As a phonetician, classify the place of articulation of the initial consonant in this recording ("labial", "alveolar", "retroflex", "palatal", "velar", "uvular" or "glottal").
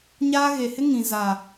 palatal